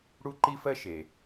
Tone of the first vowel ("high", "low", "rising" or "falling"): high